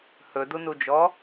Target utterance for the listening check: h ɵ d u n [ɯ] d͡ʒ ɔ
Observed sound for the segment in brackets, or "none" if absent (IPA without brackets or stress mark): u